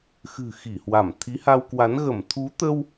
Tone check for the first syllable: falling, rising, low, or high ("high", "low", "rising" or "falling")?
low